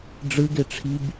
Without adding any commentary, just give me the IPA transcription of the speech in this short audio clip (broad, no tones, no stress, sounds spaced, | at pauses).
ɖ͡ʐ ɯ ɡ e ʈ͡ʂʰ i b